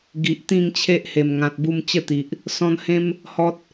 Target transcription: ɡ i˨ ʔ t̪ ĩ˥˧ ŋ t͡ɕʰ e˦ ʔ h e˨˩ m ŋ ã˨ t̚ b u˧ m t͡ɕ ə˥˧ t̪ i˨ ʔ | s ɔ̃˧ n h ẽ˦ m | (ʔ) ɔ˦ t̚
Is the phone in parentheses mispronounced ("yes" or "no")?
yes